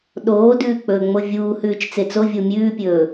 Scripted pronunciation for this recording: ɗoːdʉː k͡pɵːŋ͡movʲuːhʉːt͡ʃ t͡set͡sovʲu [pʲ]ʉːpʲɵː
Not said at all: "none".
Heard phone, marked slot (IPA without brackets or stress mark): mʲ